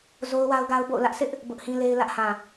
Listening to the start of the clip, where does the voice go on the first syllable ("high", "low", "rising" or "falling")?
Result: high